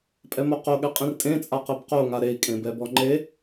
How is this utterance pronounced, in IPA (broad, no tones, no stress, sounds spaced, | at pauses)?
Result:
pʼ ɛ m o q o ɠ ɛ qʼ ĩ r tʼ ẽ t͡sʼ a q e b q o ŋ a ɾ e i̯ kʼ ẽ b ɛ b ɔ ŋ͡ǃ e